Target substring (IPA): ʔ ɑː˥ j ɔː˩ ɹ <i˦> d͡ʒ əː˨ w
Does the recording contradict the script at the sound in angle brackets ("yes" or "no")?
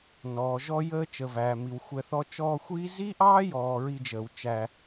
no